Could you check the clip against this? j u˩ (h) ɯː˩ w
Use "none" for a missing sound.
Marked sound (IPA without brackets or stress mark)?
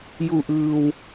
ʔ